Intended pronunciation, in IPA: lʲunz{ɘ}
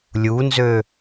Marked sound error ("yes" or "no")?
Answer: yes